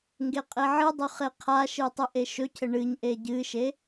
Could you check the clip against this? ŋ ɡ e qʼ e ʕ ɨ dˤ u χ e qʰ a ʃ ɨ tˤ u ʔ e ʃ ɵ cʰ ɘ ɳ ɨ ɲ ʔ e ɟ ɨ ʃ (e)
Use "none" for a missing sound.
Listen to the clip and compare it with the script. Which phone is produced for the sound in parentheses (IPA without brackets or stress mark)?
e